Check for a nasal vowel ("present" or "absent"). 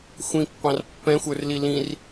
present